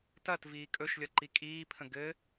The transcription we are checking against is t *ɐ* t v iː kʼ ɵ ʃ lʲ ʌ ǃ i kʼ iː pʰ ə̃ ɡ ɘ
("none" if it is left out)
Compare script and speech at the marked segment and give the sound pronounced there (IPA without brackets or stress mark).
ɐ